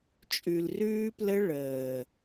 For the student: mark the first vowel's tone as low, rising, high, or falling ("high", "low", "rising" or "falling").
low